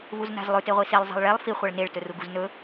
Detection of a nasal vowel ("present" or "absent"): absent